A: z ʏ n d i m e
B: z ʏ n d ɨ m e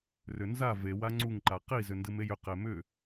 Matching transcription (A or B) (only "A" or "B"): B